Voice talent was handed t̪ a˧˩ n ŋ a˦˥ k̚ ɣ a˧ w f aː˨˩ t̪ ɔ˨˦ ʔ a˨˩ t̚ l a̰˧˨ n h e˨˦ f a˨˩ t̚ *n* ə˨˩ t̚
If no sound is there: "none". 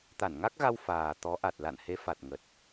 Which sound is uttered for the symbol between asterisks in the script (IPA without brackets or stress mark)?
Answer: ŋ